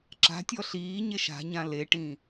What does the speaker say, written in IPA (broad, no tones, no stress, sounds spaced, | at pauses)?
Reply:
ǁ a̤ tʲ ɔ ɬ iː ɲ e ʃ a̤ ɲ ã l e ʈ ĩː